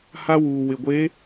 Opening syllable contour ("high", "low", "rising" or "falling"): high